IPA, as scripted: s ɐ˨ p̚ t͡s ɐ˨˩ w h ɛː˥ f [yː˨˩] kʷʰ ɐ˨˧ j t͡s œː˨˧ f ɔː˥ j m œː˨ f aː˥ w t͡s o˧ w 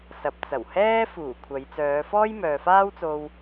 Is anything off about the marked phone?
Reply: yes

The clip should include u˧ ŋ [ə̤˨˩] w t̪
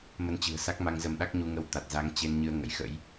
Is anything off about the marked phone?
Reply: yes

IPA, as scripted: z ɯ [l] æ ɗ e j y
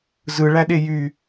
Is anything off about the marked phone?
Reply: yes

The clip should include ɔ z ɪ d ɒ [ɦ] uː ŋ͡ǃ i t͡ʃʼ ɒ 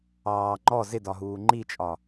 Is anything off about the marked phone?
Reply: no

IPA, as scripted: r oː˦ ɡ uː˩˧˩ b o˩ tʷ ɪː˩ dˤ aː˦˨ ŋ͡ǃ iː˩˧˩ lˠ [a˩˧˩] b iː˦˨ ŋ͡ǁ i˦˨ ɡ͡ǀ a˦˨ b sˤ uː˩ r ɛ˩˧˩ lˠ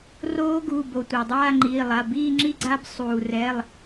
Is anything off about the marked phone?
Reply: no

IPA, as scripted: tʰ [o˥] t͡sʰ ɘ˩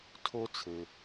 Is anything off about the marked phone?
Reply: yes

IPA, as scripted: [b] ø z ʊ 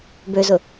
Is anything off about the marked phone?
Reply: no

